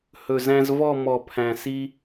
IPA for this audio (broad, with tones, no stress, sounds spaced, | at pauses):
h ɵ˨˩ z æ̃˦ z v ɔ˦˨ m ɔ˨˩˦ pʰ æ̃˨˩ s i˦